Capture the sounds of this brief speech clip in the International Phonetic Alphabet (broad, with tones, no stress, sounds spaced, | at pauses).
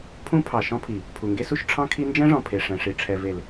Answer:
pʰ ũ˦ pʰ ɑ˨ ʃ ɔ̃˦ pʰ i˨ | pʰ u˨ ŋ ɡ e˦ s u˦ ʃ ʈ͡ʂʰ ɑ̃˦ kʰ i˦ n d͡ʒ ɛ̃˦ ʐ ɔ̃˨ pʰ e˨ ʂ ɛ̃˨ ʂ i˨ ʈ͡ʂʰ ɛ˨ v e˨ l